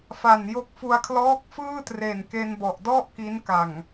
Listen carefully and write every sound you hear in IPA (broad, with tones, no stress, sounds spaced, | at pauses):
f a˨˩ n j o˦˥ k̚ f u˧ a̯ kʰ l ɔː˦˥ k̚ f ɯː˥˩ t r e˨˩ n k e˧ n b ɔ˨˩ ʔ d ɔ˥˩ ʔ k i˦˥ n k a˨˩ ŋ